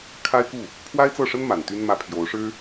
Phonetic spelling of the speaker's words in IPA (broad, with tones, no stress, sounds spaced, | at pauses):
kʰ a˥ ɪ̯ k u˥˩ | pʰ w a˥ ɪ̯ t͡s ɤ˥˩ ʂ ə˥ n m a˨˩ n t̪ y˥ n m ä˥˩ pʰ j o˧˥ ʊ̯ ʂ ɻ̩˥